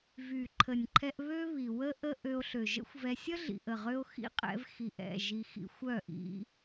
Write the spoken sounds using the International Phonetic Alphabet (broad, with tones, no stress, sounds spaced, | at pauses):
v y˨ ǃʰ ə˨ nʲ ǃʰ ɛ˧ ʔ β ø˧ β i˨ w ə˦ ʔ ə˦ ʔ ø˧ o̯ ɬ ø˨ ʒ ə̰˦ xʷ v ɛ˧ sʲ ə˦ ɮ ḭ˨ ʔ ə˨ ʁ ø˦ o̯ x ḭ˦ qʼ ɛ̰˧ v x i˨ ʔ ɛ̰˦˨ ʒ i˧ x ḭ˧ xʷ œ˦˨ ʔ ḭ˦